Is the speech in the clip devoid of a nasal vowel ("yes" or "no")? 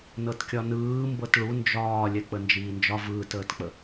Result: yes